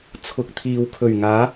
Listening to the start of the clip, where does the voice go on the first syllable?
low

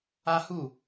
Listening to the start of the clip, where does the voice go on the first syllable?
high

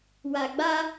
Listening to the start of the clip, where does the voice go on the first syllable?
low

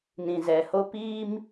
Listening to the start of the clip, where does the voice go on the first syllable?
low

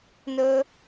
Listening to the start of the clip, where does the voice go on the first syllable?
high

